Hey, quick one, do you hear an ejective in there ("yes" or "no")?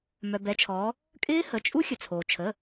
yes